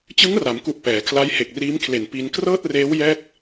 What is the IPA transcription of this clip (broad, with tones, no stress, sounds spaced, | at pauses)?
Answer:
t͡ɕ ɯ˦˥ ŋ r a˩˦ m k u˨˩ ʔ p ɛː˩˦ kʰ l a˦˥ j h e˨˩ k̚ r iː˦˥ m kʰ l e˨˩ n p i˧ n k r ɤː˥˩ t̚ r eː˦˥ w j ɛː˥˩ k̚